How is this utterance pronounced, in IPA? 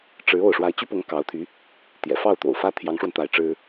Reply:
ʈ͡ʂ ɻ̩˧˥ o˥˩ ʊ̯ ʂ w a˧˥ ɪ̯ t͡ɕ y˥ p ʊ˧˥ ŋ k ɑ˧˥ ʊ̯ t̪ʰ y˧˥ | t̪ j ɛ̰˨˩ f ɑ˥˩ ʊ̯ t̪ o̰˨˩ ʊ̯ f ä˥ t̪ʰ j ɑ˧˥ ŋ ʂ w ə˧ n t̪ a˧˥ ɪ̯ ʈ͡ʂ ɻ̩˥

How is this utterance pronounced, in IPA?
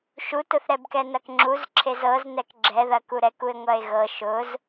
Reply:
ʃ u t ʊ θ ɾ ɛ b k ɛ n ɐ k ŋ͡ǁ u z ǁʰ e z ɤ z n ɛ k ɡ͡ǁ ɛ ð ɐ k u ɾ ɛ k u e̯ ŋʷ ɐ e̯ ɣ ɤ ʃ ʊ z

